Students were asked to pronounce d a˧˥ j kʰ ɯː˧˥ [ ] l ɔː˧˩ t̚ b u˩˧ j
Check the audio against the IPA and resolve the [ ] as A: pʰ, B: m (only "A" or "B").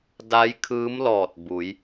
B